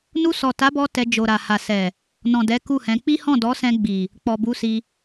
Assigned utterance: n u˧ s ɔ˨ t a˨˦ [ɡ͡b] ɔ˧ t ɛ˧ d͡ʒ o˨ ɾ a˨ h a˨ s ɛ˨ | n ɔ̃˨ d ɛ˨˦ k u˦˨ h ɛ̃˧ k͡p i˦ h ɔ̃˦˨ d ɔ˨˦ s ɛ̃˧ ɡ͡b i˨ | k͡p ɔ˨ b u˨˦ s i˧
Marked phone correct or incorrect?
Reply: incorrect